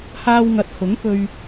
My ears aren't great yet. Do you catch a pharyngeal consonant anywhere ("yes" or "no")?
no